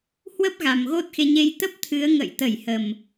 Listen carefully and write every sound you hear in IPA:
h w ə˦˥ p̚ ɣ a˨˩ m ɣ o˦˥ t̚ x e˧ ɲ e˧ j t̪ ə˦˥ p̚ t̪ʰ ɨ˨˦ ə̯ ŋ ə̰˧˨ j t̪ ə˧˩ j h ə˨˩ m

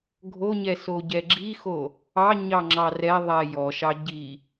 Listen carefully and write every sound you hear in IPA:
ɡʱ o ɲ ɛ s o ɟ ɛ ɡ͡ǁ i x o | ɑ ɲ ɑ ŋ͡ǁ ɑ r ɛ ðˤ ɛ j ɔ ʃ ɑ ɟ i

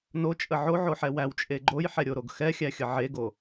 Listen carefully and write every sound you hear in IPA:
n o t͡ʃʼ ə ʕ o ʕ o ħ ɛ w æ w t͡ʃʼ e ɡ͡ǃ o j ħ ɛ ɾʲ o ɾ o ɡ x ɛ xʲ æ xʲ ə ʕ e ɡ o

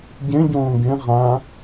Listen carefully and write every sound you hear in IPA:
ɟ ẽ ɟ õː ɡ ẽ ʁ ã

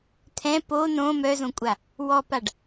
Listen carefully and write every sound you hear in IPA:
t̪ʰ ɛ̃ p o n õ m œ z õ kʷʼ a | w ɔ p a ɖ

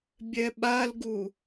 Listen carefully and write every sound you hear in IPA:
bʲ ɛ ɓ a l ɡ u

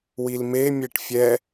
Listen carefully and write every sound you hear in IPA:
w i l m e mʲ e ʈ fʲ ɛ

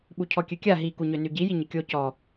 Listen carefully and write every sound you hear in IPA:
ɓ u cʰ ɔ kʲ ø kʲ a ɦ i k u ɲ ø n y ɟ i j i ɲ ɪ kʲ o c ɔ

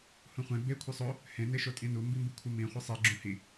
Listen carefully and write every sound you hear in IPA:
h ũ χʷ ẽ b e kʷʰ ɯ sˤ o | h ẽ n e ʃ o tʼ ĩ n u m b i m b ɯ kʷʰ ɯ m ĩ χʷ i sˤ i ɡ͡ǁ ũ h i

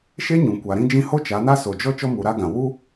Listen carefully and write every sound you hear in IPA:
ʃ e˦ ɲ ũ˨ kʷ a˨ ɾ ĩ˦ d͡ʒ ĩ˦ h o˦ t͡ʃ a˨˦ n a˦ s o˨ d͡ʒ ɔ˧ t͡ʃ ɔ˧ m u˨ ɾ a˧ ɡ ã˨ w u˦

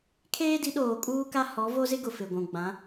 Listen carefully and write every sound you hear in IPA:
kʰ eː˦ d i˨˦ ɗ oː˨ kʼ uː˦ k a˦ h ɔ˨˦ v o˦ z ɪ˦ ɡ ʊ˨ f ɪ˨ ɡʷ ũ˨ ɡ͡b ã˨˦

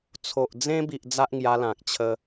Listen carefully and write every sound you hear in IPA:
t͡sʰ o˨ ʔ d͡z ẽ˧ b i˨ ʔ d͡z a˦ ʔ ŋ j a˧ l ã˨ k̚ t͡ɕʰ ə˧

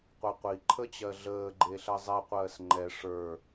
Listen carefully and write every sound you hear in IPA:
qʷ i qʷ i ǃʰ ə t͡ɕ ɜ ɮ əː ɡ͡ǃ e ɬ ɜ zˤ ɛ qʷ ɜː s ŋ͡ǃ ɛ ʂ ə˞

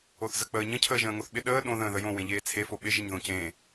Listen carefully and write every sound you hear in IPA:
o θ z ə k͡p əː ɲ ə̃ cʰ əː ʒ ə̃ː ŋ o θ ɓ ɪ ɗ əː ɗ õ ð ə̃ː ð ə j õ w ẽ ʎ eː t͡sʰ e f o ɓ ɪ ʒ ɪ ɲ ð õ c ẽ

